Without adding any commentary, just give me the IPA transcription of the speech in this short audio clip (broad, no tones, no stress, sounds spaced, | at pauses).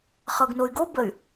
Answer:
χ ɤ ɡ n o y̯ ɡ o b ə y̯